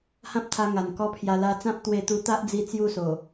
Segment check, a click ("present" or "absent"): absent